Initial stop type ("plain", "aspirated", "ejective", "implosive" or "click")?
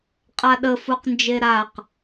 ejective